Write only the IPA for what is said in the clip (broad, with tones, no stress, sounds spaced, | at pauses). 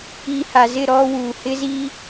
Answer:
i˨ h a˨ z ɪ˦˨ ɾ ɔ˦ w uː˨ h ɪ˦ z i˦